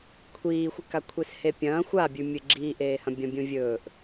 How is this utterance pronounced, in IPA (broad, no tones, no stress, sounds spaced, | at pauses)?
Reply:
kʷʰ iː xʷ ɨ k a kʷʰ e s h e pʲ ɐ̃ː xʷ a bʲ ʉ mʲ ɨ ɡ͡ǁ iː ʔ eː h ɐ̃ bʲ ɐ̃ bʲ ũ vʲ ɵː ʔ